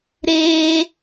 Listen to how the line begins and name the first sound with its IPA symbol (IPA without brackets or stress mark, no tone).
ɾ